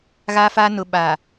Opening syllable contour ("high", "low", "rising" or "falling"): high